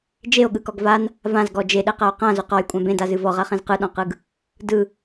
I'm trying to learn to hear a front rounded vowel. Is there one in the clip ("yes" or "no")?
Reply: no